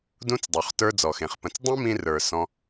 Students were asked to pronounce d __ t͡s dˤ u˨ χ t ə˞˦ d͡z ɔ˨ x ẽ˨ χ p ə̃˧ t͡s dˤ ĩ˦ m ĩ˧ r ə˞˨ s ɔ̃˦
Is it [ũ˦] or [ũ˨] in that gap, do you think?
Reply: ũ˦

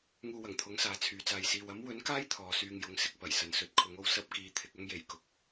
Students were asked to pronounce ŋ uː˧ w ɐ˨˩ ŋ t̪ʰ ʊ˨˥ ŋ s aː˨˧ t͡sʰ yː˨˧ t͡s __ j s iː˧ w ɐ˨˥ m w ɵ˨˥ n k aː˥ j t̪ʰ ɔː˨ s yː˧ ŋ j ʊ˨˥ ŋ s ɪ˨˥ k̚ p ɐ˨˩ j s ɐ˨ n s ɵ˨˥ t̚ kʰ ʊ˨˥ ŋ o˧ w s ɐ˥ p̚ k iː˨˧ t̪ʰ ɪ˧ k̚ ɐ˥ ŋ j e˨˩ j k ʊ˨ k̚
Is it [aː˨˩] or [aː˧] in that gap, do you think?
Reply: aː˧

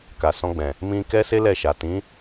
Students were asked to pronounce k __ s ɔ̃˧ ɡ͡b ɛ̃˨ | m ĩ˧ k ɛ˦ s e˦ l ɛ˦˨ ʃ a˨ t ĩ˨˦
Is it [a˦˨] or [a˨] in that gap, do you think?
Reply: a˨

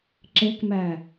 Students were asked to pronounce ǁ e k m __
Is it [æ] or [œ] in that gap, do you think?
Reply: æ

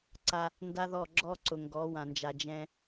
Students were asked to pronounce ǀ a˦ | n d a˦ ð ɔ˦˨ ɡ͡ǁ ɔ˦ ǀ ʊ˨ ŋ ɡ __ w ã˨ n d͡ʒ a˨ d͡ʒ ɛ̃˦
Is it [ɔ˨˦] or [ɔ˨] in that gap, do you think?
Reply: ɔ˨˦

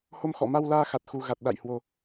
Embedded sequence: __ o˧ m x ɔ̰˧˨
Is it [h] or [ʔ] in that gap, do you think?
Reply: h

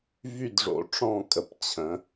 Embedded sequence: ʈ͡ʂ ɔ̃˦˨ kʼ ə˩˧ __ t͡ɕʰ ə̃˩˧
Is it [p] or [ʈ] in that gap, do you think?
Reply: p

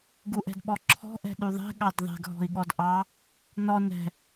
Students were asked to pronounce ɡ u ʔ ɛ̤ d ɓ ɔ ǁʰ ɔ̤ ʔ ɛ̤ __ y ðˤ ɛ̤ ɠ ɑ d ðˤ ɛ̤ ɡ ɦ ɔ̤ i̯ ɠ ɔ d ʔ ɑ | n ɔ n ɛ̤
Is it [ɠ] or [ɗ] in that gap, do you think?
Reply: ɗ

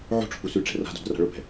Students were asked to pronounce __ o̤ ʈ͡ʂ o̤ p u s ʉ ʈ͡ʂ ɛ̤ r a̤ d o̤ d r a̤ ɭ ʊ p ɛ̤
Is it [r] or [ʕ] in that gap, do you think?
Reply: ʕ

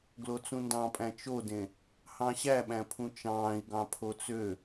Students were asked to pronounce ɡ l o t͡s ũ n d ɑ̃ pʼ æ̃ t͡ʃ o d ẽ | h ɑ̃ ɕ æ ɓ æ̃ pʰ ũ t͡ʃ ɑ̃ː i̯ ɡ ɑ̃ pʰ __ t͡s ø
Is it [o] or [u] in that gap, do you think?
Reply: o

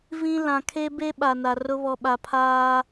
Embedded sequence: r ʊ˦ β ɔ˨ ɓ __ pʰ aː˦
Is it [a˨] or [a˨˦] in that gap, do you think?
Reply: a˨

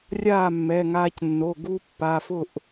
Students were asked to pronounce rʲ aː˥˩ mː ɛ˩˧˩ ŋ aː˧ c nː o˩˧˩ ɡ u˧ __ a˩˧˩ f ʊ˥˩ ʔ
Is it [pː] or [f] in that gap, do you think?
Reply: pː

